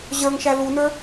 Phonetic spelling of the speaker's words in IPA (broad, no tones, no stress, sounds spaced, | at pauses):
ʑ ə˞ ŋ ʃ æ l u n ə˞